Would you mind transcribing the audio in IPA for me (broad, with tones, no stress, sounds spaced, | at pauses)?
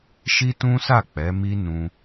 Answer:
ʃ i˦ t ũ˦ s a˦˨ k͡p ɛ˨˦ m i˦ n ũ˧